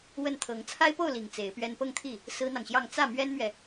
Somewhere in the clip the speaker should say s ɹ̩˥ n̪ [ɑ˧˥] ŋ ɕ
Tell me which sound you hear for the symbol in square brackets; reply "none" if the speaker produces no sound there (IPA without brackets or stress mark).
ɑ˨